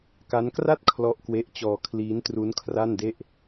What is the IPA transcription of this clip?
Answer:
k a˦˥ n k r a˥˩ t̚ kʰ l ɔ˦˥ ʔ k w e˦˥ ʔ t͡ɕ ɔː˧ kʰ l iː˦˥ n t r u˦˥ n kʰ r a˥˩ n d e˥˩ ʔ

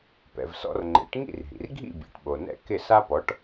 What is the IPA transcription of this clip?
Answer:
p ɛ̰˩ v s ɔ̰˧ r ŋ͡ǃ ḛ˩˥ ʈ ŋ ḭ˥˩ r ɦ ḭ˩ r ɡʱ ḭ˥˩ bʲ ḛ˩˥ ʈ ɓ o˩ n ɛ̰˥˩ k ɪ˥˩ s a˥ p ɔ˩˥ ʈ

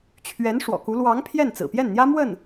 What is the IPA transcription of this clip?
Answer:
t͡ɕʰ ɥ ɛ˧˥ n ʂ w ɔ̰˨˩ k u˧˥ l w ɑ˧˥ ŋ pʰ j ɛ˥˩ n t͡s ɹ̩˨˩ p j ɛ˥˩ n n̪ j ä˥ m w ə˥˩ n

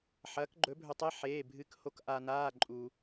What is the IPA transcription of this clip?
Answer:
ħ ɐː˨˥ k ɡ͡ǃ ɵ˨˥ bʱ ɵ˧ tˤ e˧˥˧ ħ eː˧˥˧ bʱ ɨ˧˥˧ k h o˨˥ k ʔ a˧ n aː˧˥˧ ǃʼ u˧

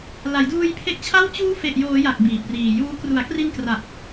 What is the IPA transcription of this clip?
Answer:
l a˩˦ j d uː˧ j pʰ e˦˥ k̚ t͡ɕʰ a˥˩ w t͡ɕ uː˦˥ f e˨˩ ʔ j oː˩˦ j a˨˩ k̚ b iː˨˩ p̚ r iː˨˩ j uː˦˥ k r u˩˦ a̯ k r i˧ n k r a˨˩ t̚

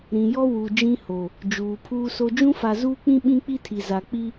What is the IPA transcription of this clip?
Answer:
ɾ ĩ˨ j ɔ˦ w u˨ d͡ʒ ĩ˦ h o˨ | d͡ʒ uː˨ pʰ uː˦ s o˦ d͡ʒ ũ˦ f a˨ z uː˦ k͡p ĩ˦ ɓ ĩ˦ k͡p i˦ tʰ i˨ z a˨ k͡p i˦

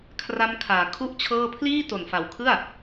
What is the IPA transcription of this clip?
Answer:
kʰ r a˦˥ m kʰ aː˩˦ kʰ u˥˩ ʔ t͡ɕʰ ɤː˥˩ pʰ l iː˥˩ t o˨˩ n f a˨˩ w kʰ ɯ˥˩ a̯

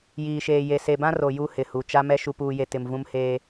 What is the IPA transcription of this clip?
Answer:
j iː˨ ʃ eː˨ j e˨ s e˨ b ã˦ r o˨ j u˦ h ɪ˨ h u˨ t͡ʃ a˦ m ɛ˦ ʃ u˨ p uː˨ j e˨ t ɪ˨ m v ũ˦ m h eː˦

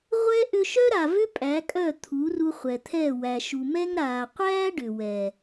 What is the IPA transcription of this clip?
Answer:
ʁʷ ɛ˦ ʔ ʏ˧ ʃ œ˦ ɾ a˨ v ʏ˦ pʼ æ˨˦ kʼ œ˦˨ t̪ʰ u˨˦ r u˧ χʷ ɛ˨ t̪ʰ ɛ˦˨ w æ˨ ʃ u˨ m ɛ˦ ŋ ɾ a˨ qʷ æ˦ ɖ ʏ˨ w ɛ˨

